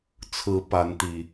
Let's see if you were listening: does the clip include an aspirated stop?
yes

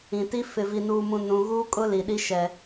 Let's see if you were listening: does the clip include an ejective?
yes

